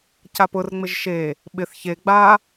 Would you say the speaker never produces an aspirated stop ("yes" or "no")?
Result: yes